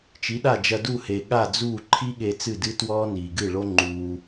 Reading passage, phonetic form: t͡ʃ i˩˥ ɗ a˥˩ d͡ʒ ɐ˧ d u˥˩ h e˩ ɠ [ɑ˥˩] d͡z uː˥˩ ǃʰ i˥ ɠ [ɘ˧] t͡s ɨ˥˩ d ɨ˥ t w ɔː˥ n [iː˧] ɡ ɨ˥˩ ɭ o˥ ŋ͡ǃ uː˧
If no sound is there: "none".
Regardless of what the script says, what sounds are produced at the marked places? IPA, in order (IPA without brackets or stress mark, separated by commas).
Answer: a˥˩, e˧, iː˩